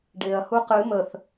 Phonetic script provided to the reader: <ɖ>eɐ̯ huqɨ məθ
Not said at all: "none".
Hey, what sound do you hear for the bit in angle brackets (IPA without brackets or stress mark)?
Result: ɖ